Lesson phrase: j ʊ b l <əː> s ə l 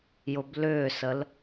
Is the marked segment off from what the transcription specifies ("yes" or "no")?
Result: yes